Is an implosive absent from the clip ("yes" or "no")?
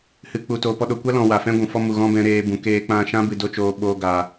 no